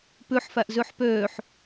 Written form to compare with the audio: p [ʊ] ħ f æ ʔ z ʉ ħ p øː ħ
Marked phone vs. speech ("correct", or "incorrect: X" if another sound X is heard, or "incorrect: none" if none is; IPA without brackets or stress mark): incorrect: ʉ